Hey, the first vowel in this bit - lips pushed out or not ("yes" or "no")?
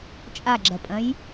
no